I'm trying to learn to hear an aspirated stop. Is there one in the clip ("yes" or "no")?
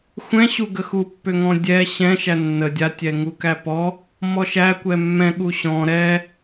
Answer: no